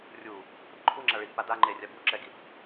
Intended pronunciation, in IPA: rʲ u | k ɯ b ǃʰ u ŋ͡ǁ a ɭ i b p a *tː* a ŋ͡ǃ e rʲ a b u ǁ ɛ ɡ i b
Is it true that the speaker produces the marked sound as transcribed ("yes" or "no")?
no